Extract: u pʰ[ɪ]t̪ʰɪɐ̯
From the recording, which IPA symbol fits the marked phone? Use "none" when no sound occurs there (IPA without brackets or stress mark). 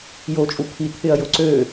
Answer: i